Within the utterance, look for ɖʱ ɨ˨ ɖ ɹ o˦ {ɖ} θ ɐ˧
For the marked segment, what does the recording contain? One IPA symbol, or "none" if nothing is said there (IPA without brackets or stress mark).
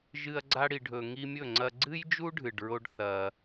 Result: ɖ